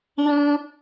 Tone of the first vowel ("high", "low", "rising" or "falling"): high